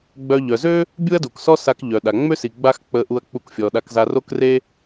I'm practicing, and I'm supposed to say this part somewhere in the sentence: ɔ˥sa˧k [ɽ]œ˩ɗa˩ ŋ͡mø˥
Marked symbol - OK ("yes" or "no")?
no